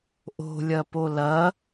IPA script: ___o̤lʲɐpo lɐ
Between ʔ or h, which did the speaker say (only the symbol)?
ʔ